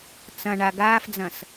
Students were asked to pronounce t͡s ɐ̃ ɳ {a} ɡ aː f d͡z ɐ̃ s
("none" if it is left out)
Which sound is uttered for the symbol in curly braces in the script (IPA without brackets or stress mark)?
a